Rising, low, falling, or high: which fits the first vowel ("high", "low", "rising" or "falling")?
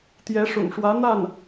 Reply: rising